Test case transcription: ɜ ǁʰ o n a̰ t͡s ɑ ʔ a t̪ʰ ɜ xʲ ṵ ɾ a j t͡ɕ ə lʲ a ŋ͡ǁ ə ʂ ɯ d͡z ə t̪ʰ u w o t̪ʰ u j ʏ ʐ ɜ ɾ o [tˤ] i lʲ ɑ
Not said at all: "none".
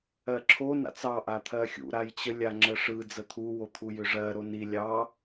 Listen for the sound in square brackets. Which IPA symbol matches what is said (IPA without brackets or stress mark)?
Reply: n